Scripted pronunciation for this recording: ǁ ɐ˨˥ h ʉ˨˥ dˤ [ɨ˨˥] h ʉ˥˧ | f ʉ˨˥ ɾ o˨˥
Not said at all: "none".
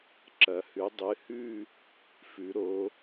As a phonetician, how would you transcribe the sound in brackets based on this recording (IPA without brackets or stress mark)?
ɨ˨˥